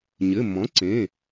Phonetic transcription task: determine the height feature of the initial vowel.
mid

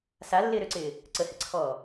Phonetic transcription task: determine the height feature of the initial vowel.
low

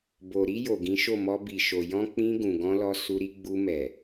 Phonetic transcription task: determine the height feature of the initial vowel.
mid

